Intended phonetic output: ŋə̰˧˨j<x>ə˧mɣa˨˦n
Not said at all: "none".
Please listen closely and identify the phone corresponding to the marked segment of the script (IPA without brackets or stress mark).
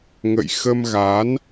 x